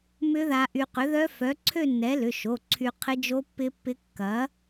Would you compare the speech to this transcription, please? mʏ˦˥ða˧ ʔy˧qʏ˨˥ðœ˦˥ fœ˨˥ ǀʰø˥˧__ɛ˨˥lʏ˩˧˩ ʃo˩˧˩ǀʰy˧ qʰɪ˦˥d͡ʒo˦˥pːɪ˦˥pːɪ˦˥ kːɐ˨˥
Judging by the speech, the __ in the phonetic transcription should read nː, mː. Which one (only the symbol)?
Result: nː